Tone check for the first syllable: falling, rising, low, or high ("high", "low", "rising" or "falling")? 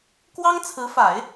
high